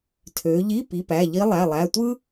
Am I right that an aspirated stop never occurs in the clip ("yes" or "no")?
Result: no